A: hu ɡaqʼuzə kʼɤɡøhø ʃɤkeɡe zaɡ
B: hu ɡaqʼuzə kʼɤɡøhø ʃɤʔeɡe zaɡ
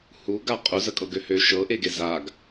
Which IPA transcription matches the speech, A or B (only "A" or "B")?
B